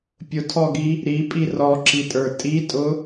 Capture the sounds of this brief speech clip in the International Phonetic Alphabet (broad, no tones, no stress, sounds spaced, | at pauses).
pʲ ʊ tʰ ɔ ɡ i | ɾ i pʼ i r ɔ ǁ i tʼ ə˞ tʼ i tʼ ʊ